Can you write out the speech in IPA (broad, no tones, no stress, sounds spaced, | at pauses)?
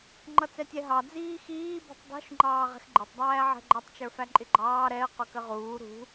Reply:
ŋ͡ǃ ʌ t͡s ɛ tʲ ɛ ɦ ɑ d͡z iː x iː b ṳ tˤ dˤ ṳ ʃ ŋ͡ǃ ɑː ʁ ɛ̤ x ɡ͡ǃ ɪ tˤ dˤ æː ʕ ɛ̤ ɡ͡ǃ ʌ tˤ t͡ʃ ə˞ f æ ǃʼ ɪ ɡ͡ǃ ɑː ɾ ɛ ə̯ q ʊ k ə ʁ uː ɾ ṳ